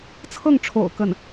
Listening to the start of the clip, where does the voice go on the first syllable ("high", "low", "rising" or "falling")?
falling